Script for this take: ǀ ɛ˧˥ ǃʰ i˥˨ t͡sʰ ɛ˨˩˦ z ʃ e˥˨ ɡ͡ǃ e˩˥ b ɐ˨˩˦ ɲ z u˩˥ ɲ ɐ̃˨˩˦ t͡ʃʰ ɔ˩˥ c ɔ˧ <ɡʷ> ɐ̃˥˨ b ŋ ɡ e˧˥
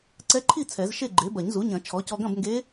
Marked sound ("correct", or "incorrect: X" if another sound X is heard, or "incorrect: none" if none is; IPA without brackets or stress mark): incorrect: ɡ